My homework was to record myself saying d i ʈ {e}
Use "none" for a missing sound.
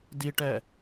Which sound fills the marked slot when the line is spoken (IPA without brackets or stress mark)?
ɛ